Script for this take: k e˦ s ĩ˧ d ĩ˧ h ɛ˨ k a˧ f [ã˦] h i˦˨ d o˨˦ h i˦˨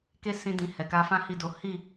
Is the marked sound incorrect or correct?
correct